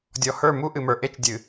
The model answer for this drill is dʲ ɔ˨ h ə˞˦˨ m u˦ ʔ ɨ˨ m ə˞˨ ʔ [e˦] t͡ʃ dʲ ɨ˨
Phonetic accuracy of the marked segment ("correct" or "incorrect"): correct